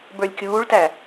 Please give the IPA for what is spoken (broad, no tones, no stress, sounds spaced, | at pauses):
b ə˞ lʲ kʲ uː ɭ t æ